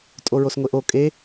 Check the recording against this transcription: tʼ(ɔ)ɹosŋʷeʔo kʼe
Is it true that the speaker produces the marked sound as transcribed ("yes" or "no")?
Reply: no